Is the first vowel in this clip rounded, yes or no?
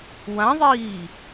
no